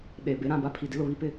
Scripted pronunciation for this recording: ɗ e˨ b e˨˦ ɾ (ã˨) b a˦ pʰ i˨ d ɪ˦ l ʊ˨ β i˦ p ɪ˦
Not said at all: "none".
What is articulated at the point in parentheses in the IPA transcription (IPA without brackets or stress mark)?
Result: ã˨